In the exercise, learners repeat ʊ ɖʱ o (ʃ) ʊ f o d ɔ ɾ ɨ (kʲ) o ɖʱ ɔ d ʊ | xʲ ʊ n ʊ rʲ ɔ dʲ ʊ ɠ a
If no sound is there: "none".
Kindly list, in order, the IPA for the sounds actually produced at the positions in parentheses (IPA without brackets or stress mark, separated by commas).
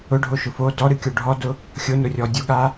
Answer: ʃ, kʲ